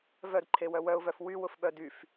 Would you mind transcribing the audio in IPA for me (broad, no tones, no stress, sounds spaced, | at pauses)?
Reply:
v œ d ǃʰ e w œ w œ ʊ̯ v œ f w y w ʊ f ɓ œ d y f